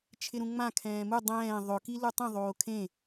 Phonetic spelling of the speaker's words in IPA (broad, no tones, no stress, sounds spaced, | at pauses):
t͡ʃʰ ɪ ɾ ũ ŋ͡m ã kʰ ɛ̃ː m u dˤ ɛ̃ː ðˤ ʊ k i l u tˤ ĩ ðˤ oː kʰ ẽ